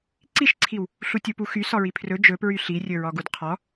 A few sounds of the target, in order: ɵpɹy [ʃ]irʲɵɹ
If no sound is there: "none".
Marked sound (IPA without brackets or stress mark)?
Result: ɬ